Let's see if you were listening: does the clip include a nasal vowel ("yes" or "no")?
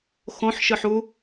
yes